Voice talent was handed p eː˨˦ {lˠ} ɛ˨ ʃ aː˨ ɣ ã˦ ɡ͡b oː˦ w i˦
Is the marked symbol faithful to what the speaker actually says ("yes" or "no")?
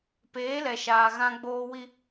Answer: no